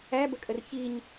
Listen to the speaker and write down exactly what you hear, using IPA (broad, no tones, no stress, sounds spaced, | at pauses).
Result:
æ b ə kʼ ə r ç i ɲ